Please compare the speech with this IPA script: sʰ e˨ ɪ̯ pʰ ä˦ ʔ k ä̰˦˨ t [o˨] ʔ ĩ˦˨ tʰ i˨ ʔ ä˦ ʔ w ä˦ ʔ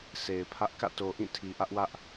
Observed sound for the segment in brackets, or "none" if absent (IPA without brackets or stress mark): o˨